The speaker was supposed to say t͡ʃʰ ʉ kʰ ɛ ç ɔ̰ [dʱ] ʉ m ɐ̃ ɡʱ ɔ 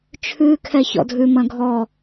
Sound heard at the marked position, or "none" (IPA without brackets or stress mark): dʱ